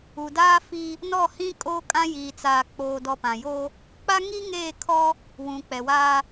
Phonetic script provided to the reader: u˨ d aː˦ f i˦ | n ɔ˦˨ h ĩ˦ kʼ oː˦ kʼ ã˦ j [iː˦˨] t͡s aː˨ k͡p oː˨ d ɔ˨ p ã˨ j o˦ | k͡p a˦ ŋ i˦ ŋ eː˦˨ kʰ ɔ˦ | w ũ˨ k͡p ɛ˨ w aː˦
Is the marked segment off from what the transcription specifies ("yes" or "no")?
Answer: yes